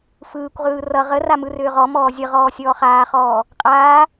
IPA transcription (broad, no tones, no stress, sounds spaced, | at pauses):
f ɯː kʷ ʁ ɯː r ʌ ʁ ə r a m ɯ r ʏː ʁ ɔ m ɔː zʲ ə ʁ ɔː sʲ ɔː χ aː χ ɔː | qʼ aː